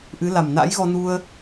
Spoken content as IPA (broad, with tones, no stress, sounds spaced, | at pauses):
ʔ ɨ˨˦ l a˨˩ m n a̰˧˥ j ɣ ɔ˧ n u˧ ə̯